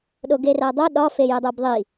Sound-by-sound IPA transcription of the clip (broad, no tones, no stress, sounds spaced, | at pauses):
ɗ o ɡ e r æ dˤ o ɗ ɒ f e j e dˤ o b ðˤ i